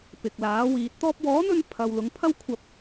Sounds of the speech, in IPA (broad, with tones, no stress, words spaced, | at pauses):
pɪ˨k̚laː˨˥wiː˨˥t̚ t̪ɔː˧p̚wɔː˨˥n̪ɵ˧n pʰɐ˨wlʊ˨˧ŋpʰɐ˥wkʷʰɐ˧p̚